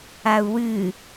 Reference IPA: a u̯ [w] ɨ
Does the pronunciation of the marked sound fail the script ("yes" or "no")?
no